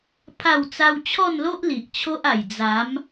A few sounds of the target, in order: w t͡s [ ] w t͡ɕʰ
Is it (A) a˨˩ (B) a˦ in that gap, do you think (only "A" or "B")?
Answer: B